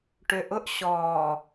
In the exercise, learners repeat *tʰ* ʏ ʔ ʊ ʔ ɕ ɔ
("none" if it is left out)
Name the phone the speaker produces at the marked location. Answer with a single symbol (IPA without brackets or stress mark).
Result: ʈ